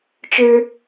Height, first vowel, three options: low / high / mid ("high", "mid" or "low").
mid